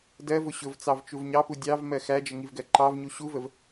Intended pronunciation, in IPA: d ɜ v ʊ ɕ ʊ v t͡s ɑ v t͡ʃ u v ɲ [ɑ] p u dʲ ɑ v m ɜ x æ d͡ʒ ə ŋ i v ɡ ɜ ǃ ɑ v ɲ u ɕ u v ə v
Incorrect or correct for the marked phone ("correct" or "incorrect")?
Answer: correct